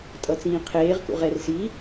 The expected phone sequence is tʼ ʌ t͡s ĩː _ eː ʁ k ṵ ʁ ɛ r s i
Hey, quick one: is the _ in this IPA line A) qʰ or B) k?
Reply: A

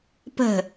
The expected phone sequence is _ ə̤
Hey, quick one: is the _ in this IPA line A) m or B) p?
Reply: B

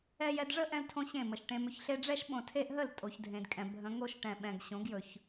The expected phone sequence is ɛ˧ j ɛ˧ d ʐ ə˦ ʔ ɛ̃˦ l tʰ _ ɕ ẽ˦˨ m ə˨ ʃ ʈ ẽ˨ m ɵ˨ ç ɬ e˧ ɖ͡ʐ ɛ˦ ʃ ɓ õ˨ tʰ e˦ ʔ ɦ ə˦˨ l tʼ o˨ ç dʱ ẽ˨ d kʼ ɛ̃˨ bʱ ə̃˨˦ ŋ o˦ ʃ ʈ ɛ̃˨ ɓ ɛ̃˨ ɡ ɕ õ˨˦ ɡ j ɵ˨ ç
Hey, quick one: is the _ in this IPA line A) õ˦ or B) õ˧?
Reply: A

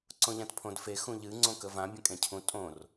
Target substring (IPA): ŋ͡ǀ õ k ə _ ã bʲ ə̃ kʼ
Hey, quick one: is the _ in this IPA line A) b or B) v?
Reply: B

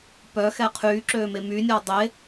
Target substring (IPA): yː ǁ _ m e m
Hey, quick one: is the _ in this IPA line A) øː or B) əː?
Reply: A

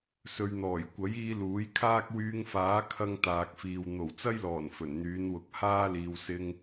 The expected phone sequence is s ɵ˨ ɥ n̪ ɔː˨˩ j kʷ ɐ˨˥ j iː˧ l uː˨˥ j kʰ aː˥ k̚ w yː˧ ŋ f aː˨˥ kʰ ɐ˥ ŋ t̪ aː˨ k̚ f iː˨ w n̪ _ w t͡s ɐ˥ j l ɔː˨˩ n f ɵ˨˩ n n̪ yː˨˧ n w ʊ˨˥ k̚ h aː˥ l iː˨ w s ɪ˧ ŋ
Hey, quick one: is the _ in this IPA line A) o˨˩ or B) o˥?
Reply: A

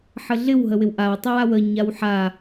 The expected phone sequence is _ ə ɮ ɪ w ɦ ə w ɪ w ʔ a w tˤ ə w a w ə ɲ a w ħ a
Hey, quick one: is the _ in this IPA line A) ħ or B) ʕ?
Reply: A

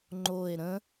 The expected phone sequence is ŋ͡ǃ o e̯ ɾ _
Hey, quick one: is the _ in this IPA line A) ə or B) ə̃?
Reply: B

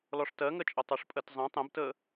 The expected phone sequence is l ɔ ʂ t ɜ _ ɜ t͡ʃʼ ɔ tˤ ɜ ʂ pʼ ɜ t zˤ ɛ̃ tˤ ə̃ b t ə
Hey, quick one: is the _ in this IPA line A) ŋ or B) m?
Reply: A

